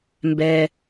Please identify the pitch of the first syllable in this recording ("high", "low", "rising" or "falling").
low